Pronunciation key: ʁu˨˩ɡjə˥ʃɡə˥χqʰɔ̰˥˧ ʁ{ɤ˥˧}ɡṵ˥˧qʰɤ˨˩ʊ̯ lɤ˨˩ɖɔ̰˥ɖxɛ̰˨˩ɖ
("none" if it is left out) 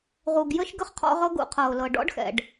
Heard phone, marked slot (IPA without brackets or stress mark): ɤ˥